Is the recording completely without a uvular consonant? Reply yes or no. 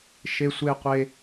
no